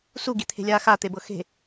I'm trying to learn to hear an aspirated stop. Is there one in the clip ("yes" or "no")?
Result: yes